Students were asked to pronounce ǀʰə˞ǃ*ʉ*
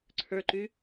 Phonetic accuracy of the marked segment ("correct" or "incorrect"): correct